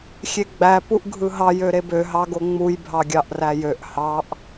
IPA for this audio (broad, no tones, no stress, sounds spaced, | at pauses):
xʲ e ɡ͡b æ p u ʔ ɡʱ ɯ ɦ ɑ j ø ɾ e b ø ɦ ɑ ɡ o ŋ͡m u j bʱ ɑ ɡʲ ɑ ʔ r æ j ø ʔ h ɑ ʔ